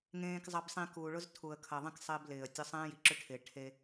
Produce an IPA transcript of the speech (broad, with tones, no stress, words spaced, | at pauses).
ŋẽː˨kzˤɐ˨bsˤĩ˨ kuː˨ɭʊ˦z tʰu˨ə̯kʰɐ˨ðˤĩ˦k sˤɪː˦blɪː˨ə̯tʲʊ˦ sˤẽː˦ji˨ǁʏ˦ʈʰɪː˨ ʈʰe˦